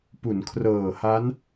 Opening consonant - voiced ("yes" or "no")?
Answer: no